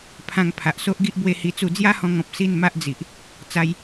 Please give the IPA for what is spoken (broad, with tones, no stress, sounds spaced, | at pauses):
pʰ ã˧ ŋ pʰ a˨ ʔ s o˦ ʔ ɡ i˦ ʔ b w e˦ h i˧ t͡s u˥˧ d͡z j a˦ h ɔ̃˧ ŋ ɔ̃˨ p̚ s i˥˧ n m a˦ ʔ d͡z i˨ ʔ | t͡s a˧ j